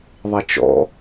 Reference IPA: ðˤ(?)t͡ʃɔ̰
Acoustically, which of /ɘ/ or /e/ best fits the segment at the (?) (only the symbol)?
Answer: e